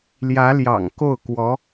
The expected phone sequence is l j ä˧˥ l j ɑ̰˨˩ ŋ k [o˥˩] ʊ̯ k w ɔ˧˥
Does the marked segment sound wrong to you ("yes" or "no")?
no